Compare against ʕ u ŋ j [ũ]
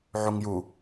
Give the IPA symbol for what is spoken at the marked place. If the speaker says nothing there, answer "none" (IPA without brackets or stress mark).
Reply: u